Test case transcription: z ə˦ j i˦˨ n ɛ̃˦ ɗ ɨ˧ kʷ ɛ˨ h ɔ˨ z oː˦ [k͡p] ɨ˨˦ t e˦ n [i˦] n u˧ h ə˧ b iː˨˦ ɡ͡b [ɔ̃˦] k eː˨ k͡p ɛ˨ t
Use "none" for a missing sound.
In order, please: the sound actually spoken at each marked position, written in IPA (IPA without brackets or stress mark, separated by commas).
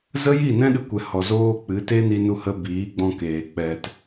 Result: k͡p, i˧, ɔ̃˧